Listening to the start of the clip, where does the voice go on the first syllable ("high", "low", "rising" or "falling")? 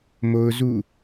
high